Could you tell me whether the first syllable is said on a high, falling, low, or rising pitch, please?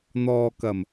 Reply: low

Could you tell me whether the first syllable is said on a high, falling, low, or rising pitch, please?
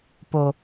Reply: low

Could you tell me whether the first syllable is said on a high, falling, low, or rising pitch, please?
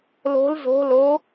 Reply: rising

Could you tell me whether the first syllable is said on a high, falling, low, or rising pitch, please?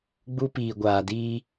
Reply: high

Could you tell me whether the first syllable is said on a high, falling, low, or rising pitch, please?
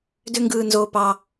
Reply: high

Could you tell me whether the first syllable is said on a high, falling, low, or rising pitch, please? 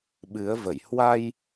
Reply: rising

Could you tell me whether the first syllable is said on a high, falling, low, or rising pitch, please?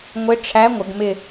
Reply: rising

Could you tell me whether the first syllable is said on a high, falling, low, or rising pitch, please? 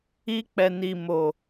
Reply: high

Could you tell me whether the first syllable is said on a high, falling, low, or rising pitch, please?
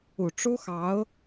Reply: low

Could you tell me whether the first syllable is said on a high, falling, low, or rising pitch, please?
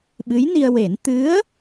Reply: rising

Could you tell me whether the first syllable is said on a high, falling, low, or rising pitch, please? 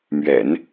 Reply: low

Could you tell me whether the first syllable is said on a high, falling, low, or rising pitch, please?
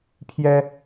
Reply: high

